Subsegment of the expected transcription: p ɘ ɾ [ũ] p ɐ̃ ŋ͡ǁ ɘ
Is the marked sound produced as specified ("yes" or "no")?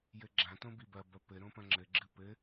no